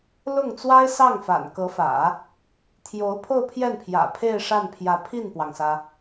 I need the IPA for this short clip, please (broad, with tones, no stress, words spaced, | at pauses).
lʊ˥˩ŋt͡swa˥ɪ̯sɑ˥˩ŋfa̰˨˩n kɤ˧˥fä̰˨˩˦ | t̪ʰjo˧˥ʊ̯ pʰo˥˧ʊ̯pʰjɛ˥˩npʰjä̰˨˩ pʰe˥˧ɪ̯ʂa˥˩npʰjä˧˥ pʰi˥˩npwɑ˩ŋsä˩